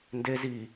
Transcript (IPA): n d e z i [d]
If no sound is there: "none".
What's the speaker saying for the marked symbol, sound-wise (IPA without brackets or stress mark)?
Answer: none